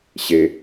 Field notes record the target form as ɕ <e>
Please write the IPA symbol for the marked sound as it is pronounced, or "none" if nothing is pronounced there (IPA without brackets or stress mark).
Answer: e